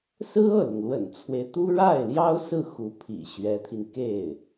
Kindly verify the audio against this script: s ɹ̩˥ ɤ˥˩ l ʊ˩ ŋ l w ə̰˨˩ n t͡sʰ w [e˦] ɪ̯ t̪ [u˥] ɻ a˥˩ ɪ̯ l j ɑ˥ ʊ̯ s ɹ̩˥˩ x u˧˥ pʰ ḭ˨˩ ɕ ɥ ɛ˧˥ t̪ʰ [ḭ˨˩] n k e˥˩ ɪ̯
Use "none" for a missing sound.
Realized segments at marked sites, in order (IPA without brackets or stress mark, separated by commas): e˦, u˥, i˧